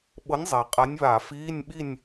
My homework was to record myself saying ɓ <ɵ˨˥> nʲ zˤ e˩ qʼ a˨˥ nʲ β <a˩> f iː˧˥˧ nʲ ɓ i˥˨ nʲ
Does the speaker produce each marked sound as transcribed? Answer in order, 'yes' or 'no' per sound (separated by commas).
no, no